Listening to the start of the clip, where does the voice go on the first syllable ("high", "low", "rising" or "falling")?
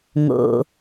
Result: low